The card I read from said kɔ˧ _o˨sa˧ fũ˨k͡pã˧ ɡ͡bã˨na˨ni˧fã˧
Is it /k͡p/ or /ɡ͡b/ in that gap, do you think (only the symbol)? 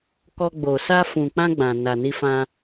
ɡ͡b